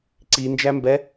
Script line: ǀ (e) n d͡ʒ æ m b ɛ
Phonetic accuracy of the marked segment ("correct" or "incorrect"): incorrect